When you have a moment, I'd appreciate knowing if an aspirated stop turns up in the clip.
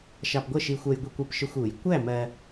no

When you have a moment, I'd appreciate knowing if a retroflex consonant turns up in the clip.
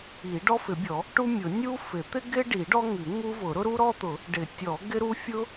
yes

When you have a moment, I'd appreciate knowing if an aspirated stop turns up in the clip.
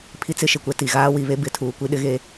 yes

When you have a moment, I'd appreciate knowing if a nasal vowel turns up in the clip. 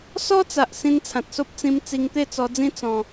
yes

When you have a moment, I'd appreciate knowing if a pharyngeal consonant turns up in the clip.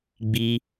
no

